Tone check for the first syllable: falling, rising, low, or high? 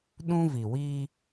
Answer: high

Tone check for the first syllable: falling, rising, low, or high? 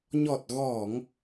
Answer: low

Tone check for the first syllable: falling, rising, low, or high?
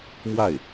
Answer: falling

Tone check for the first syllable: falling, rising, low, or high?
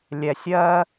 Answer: low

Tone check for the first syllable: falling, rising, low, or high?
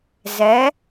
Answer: rising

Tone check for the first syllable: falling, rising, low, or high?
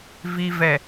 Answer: low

